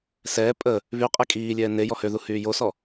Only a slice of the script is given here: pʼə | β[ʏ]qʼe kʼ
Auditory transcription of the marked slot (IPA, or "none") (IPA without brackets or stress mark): y